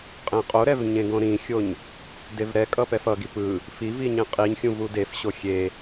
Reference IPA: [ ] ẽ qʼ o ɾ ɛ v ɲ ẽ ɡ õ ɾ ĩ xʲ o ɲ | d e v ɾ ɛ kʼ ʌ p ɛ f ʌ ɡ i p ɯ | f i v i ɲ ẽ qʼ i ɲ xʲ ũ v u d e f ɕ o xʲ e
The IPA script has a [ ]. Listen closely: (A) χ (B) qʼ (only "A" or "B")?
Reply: B